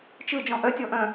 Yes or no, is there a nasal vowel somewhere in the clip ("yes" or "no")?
yes